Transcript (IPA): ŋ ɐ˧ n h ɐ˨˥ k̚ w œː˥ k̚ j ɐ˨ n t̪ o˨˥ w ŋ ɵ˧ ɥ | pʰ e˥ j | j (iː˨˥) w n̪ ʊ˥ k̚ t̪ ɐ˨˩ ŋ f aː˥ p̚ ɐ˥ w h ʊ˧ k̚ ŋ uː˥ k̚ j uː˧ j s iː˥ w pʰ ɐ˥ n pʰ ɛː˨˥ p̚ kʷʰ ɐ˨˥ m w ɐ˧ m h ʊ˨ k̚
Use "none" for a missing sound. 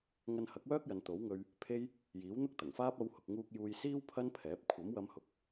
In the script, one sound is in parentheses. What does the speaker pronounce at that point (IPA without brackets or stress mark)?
iː˨˥